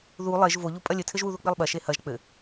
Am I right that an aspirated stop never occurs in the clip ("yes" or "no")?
no